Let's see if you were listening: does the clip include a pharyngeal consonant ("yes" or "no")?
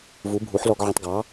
yes